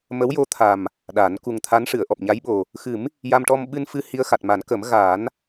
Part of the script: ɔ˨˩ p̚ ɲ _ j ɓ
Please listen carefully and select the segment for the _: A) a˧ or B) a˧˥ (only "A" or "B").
B